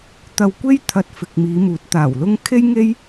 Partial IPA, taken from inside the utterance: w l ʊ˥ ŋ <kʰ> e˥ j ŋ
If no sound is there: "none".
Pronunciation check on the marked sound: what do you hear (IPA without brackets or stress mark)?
kʰ